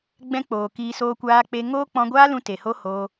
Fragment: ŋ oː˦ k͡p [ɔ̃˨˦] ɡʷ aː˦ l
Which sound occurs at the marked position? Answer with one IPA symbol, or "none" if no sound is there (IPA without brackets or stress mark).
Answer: ɔ̃˧